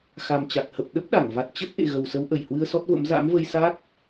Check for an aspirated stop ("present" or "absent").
absent